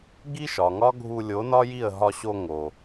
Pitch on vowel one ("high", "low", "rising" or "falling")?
high